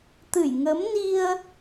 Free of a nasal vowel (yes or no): yes